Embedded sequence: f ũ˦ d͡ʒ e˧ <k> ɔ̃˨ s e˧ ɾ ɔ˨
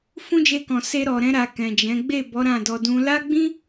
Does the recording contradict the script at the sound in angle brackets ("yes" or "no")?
no